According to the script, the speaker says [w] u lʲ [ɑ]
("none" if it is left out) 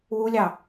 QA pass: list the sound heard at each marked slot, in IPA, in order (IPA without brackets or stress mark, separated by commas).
w, ɑ